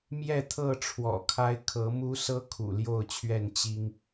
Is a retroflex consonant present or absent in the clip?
present